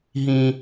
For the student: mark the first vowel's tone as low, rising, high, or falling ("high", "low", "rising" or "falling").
low